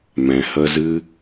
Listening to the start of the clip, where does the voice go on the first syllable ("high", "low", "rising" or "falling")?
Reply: low